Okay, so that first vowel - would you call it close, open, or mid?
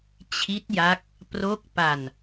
close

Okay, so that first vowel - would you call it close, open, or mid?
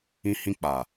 close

